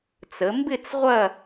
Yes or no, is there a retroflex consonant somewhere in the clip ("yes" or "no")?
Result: no